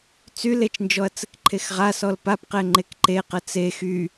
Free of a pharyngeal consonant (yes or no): yes